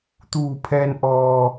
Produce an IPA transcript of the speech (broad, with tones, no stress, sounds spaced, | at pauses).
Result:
t̪ uː˧˩ pʰ ɛː˧ n ʔ ɔː˧